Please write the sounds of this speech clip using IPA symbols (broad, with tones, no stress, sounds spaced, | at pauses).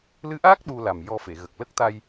l ɨ˧˥ ʔ aː˦˥ k̚ ɗ u˧ l a˨˩ m j ɔ˧ f e˨˩˨ ɣ ə˨˩ k̚ l ə˦˥ k̚ t̪ a˧ j